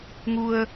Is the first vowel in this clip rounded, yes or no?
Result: yes